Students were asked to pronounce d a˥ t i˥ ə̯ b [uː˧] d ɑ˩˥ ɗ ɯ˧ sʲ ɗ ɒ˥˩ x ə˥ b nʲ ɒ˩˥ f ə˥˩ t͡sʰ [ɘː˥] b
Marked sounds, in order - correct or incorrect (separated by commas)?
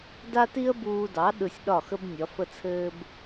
correct, correct